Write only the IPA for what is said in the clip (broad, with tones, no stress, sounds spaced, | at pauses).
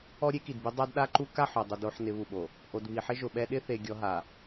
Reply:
ɔ˦ ɾʲ e˦ k i˨ d b i˦ dˤ a˦ d ɗ a˦ ǃ u˦ k a˦˨ ħ o˨ dˤ ʊ˦ d o˦ ħ n ɪ˨˦ β u˨ ɓ o˨ | ʔ o˨ d β i˨ ħ ɪ˦ ʒ ʊ˨ ɓ ɛ˦ ɗ ɪ˦ θ e˨ ɡʲ ɔ˦ ɦ a˨